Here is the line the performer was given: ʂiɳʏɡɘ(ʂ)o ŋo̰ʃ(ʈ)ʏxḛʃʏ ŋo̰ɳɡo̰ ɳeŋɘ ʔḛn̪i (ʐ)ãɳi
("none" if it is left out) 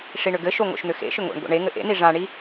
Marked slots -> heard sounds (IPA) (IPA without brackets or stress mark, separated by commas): ʃ, n̪, ʐ